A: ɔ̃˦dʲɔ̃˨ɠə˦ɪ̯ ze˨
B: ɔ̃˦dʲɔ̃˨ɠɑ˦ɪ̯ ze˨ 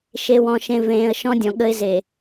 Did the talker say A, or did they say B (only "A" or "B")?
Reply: A